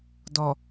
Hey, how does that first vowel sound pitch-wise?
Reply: low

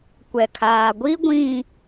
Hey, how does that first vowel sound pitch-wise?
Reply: low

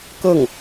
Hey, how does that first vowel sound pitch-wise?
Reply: falling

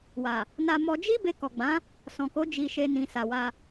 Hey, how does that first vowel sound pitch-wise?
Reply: low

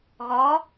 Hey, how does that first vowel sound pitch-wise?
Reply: rising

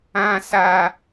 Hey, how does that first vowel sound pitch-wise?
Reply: high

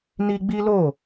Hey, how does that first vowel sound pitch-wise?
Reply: high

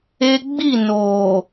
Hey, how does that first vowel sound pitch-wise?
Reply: high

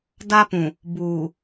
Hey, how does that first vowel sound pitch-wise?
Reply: high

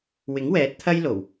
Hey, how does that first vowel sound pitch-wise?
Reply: rising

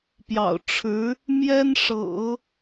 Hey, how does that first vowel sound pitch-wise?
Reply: low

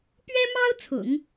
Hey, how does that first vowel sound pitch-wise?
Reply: high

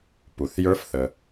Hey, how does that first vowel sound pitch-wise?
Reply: low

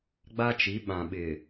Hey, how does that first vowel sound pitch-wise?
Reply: high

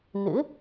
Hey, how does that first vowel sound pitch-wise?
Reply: rising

